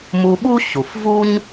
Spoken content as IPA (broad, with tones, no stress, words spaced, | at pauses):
mu˧ɓu˥ɕu˩fvu˥ɲ